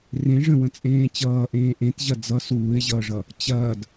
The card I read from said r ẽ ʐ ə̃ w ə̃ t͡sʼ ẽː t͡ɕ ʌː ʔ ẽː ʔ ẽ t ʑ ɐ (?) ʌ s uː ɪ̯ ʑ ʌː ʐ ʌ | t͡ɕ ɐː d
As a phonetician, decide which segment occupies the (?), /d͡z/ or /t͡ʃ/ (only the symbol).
d͡z